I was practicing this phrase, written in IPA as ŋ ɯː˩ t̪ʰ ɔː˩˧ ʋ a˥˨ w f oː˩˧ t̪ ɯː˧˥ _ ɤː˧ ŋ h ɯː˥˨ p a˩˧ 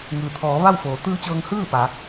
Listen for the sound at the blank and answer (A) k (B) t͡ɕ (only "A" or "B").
B